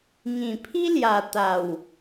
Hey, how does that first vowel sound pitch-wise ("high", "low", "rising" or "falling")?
low